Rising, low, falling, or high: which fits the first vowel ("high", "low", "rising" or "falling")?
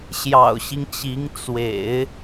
low